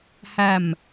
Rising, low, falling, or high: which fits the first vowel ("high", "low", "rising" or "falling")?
low